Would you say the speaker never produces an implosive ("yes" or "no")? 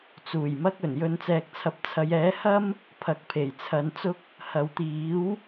yes